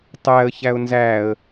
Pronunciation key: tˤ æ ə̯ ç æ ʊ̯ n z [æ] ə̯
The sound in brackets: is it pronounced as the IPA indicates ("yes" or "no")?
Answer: yes